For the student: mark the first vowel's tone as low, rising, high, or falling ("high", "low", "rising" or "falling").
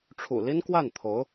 low